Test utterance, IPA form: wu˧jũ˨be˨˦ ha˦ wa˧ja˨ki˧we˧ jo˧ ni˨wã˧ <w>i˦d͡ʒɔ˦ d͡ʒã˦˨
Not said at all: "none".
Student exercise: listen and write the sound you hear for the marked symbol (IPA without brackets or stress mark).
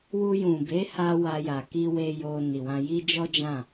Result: j